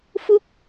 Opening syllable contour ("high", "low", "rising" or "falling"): high